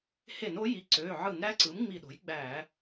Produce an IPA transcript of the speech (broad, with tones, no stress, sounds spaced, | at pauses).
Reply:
h e˧˩˧ n o˩˥ j i˩˧˩ ǀ øː˩˧˩ ʕ ɯ˧˩˧ n ɾ æ˧˥ ǀ ɯ˩˥ m ŋ͡m i˧˩ ɗ o̤˩˥ j ɡ͡b æ˧˩˧